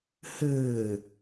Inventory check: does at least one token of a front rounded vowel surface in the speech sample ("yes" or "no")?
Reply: no